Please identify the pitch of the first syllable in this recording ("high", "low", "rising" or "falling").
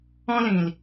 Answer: high